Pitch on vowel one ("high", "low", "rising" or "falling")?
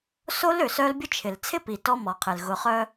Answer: high